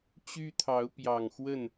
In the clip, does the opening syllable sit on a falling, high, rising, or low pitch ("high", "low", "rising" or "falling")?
high